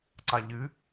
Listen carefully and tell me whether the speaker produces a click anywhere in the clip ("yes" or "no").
yes